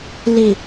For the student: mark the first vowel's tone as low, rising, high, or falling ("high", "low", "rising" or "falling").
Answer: low